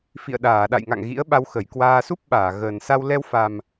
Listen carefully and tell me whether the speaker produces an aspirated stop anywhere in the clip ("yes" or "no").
no